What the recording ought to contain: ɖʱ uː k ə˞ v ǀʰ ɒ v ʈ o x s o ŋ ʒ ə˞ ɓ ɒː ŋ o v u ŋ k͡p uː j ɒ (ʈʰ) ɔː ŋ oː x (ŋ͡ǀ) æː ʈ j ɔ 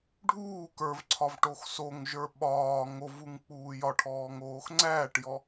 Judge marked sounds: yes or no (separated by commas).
yes, yes